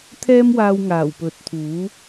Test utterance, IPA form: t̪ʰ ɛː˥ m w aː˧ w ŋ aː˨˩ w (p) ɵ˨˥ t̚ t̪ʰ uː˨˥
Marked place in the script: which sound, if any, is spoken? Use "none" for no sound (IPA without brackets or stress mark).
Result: p